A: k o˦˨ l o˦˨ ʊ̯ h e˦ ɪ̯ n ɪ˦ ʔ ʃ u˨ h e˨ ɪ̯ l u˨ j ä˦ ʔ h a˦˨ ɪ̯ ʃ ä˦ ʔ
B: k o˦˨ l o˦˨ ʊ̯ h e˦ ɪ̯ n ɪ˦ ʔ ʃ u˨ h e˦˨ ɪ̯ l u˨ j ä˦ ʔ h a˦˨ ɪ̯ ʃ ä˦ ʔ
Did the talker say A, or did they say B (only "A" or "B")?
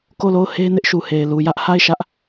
A